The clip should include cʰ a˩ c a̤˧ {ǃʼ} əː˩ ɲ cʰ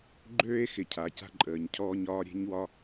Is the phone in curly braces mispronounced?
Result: no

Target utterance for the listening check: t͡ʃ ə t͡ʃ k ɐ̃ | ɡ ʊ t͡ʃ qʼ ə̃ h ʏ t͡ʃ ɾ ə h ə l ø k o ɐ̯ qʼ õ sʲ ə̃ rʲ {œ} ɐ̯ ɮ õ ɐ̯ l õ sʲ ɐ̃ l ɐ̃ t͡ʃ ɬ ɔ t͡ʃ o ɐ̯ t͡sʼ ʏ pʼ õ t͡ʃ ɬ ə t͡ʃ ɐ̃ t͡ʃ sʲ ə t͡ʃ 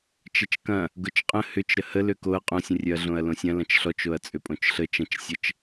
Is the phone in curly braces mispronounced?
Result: no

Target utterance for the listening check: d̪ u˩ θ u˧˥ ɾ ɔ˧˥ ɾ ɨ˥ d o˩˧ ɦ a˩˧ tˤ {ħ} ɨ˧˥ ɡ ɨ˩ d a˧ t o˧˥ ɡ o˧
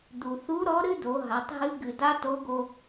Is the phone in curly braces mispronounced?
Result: yes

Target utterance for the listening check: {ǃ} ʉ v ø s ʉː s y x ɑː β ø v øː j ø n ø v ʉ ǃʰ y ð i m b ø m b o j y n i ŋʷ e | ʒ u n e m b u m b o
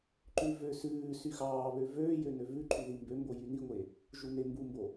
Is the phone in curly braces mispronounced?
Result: no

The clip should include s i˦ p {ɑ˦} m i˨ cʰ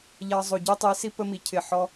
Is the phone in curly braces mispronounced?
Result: yes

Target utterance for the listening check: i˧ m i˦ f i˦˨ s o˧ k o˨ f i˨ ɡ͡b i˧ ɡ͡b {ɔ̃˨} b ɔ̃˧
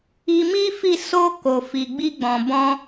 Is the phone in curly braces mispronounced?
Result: no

